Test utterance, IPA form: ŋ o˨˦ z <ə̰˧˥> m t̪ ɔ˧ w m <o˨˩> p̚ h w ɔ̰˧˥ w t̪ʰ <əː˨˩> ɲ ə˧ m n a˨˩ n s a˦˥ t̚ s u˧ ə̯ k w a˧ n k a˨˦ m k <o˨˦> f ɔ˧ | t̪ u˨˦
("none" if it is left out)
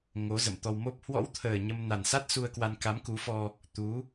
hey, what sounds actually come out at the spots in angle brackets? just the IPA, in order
ə̰˧˨, o˦˥, əː˨˩, u˨˦

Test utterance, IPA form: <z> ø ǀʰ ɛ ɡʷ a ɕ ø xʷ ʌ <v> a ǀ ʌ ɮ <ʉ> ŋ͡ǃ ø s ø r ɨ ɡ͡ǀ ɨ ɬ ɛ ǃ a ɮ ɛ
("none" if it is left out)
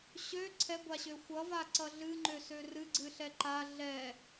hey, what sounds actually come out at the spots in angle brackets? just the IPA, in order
ɕ, v, ɨ

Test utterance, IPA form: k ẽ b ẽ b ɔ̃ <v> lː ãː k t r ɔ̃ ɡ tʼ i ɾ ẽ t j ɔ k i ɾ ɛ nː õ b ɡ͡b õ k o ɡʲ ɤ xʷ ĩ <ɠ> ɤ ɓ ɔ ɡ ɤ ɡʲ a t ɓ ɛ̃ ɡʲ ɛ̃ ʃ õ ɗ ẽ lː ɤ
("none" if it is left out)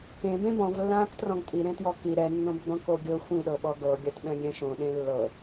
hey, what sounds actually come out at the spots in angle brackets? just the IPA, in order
v, ɗ

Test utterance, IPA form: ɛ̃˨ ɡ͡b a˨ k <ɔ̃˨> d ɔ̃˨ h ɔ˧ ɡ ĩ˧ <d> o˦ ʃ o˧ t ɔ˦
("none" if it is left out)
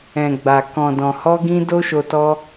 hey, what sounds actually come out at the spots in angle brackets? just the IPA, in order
ɔ̃˨, d

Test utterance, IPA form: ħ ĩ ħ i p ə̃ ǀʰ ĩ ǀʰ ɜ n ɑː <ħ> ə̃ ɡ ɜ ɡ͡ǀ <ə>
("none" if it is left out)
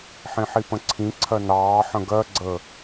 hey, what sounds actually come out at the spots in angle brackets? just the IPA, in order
ħ, ə

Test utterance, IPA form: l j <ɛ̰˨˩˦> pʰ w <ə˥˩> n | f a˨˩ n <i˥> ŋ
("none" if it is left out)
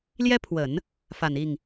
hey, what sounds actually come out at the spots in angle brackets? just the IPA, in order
ɛ˥, ə˨˩˦, i˥˩

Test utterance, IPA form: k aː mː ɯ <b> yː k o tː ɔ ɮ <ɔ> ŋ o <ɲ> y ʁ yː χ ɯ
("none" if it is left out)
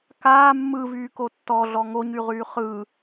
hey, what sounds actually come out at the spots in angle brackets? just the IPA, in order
v, ɔ, ɲ

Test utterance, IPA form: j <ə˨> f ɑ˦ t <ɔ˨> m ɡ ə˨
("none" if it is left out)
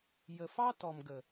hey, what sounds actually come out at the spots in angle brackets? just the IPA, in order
ə˨, ɔ˨

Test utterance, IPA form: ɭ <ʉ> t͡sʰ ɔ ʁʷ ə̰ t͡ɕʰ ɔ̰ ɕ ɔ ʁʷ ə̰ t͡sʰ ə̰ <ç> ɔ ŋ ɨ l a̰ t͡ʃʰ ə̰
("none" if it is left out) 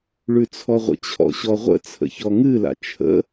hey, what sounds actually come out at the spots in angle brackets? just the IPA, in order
ʉ, ç

